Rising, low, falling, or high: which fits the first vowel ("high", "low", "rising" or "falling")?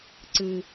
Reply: low